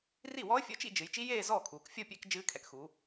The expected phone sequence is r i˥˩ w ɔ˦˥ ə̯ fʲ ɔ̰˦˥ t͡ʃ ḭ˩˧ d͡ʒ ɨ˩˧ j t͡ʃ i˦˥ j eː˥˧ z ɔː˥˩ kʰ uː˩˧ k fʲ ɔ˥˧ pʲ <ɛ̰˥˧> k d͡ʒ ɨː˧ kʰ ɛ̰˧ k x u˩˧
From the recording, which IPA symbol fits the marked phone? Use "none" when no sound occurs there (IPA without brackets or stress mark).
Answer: ɛ̰˥˧